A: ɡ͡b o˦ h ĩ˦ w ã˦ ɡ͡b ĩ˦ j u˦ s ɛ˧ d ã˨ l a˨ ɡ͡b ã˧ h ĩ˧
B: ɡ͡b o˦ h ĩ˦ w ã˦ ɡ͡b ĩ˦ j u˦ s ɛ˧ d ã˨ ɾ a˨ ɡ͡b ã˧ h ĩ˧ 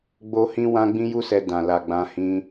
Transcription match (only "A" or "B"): A